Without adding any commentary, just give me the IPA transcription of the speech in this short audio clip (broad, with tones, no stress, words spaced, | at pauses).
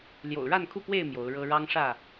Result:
ljo̰˨˩ʊ̯ɻa˥˨nkʰu˥˨pwe˥˨ɪ̯ mjo˨˦ʊ̯ɻɤ˦ ɻɑ˦ŋ ʂä˥˨